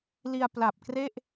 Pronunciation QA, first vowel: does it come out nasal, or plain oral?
oral